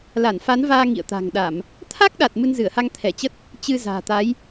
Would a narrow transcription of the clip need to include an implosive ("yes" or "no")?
yes